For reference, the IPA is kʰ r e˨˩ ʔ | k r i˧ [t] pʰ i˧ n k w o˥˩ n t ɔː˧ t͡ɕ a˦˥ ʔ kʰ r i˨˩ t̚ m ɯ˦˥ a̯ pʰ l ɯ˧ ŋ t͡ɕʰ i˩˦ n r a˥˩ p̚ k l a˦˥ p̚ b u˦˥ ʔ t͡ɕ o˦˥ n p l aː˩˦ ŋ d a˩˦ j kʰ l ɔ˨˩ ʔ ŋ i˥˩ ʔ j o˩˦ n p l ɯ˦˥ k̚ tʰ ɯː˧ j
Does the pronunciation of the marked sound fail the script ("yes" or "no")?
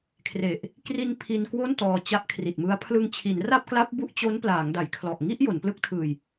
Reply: yes